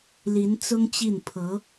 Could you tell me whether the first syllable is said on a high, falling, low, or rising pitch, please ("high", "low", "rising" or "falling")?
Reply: rising